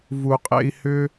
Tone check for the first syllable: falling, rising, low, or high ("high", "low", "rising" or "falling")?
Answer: low